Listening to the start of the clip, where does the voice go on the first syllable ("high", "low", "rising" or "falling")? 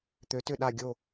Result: rising